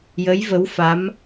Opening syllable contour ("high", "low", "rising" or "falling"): rising